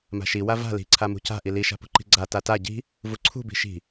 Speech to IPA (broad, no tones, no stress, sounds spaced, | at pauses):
m a̤ ʃ i w a v a̤ l i̤ ǀʰ a m ṳ c a̤ ʔ i l i ʃ a̤ p ṳ ǃ i̤ ɡ͡ǀ a t a t a ɟ i̤ | v u ǀʰ ṳ b i̤ ʃ i̤